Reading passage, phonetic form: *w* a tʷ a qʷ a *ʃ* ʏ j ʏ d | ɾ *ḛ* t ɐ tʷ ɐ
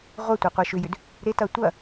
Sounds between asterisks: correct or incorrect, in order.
incorrect, correct, incorrect

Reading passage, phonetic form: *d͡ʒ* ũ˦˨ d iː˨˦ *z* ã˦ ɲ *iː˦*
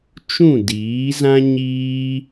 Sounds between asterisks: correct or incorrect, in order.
incorrect, correct, correct

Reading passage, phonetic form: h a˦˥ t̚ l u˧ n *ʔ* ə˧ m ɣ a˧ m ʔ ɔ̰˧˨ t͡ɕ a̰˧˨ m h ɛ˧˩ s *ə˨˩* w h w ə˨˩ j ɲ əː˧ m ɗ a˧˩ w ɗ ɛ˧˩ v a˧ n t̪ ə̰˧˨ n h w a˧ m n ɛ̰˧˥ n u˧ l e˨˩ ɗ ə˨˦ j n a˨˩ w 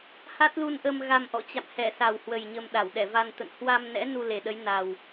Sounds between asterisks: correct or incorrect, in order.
correct, incorrect

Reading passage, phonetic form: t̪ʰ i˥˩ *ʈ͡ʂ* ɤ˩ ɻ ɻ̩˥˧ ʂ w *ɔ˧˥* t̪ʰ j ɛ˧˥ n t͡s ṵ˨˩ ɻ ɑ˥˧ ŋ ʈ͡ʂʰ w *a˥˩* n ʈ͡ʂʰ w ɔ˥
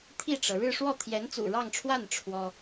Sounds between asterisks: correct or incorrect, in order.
correct, incorrect, correct

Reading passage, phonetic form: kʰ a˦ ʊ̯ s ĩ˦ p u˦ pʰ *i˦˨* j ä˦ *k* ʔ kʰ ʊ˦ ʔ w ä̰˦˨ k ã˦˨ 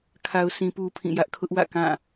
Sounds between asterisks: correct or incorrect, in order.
incorrect, incorrect

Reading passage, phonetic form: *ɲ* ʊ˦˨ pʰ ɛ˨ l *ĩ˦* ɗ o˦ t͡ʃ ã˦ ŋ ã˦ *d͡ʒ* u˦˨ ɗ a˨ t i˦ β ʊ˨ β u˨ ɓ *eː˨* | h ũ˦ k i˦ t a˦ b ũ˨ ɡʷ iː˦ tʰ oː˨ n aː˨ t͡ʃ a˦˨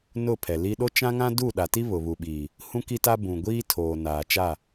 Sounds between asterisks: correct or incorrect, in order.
incorrect, incorrect, incorrect, incorrect

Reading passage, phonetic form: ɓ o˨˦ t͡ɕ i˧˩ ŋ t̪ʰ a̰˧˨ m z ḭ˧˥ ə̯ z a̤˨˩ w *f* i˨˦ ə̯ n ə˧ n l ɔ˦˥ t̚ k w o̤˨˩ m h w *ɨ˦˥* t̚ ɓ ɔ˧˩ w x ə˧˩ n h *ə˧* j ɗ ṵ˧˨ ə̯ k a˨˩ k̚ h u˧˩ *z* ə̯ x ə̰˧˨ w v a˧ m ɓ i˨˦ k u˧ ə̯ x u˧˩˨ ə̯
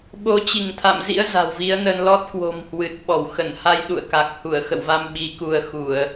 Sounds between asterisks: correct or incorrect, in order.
incorrect, incorrect, incorrect, incorrect

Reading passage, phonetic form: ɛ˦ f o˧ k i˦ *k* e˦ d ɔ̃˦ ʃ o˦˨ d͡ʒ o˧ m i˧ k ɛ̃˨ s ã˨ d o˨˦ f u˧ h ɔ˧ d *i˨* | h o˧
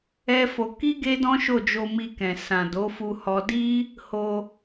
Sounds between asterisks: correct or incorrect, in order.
incorrect, incorrect

